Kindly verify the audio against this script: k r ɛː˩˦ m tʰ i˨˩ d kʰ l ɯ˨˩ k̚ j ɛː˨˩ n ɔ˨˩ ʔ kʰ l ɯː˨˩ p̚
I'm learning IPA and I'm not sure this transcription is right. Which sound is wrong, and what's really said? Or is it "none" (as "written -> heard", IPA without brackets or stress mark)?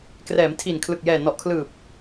d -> n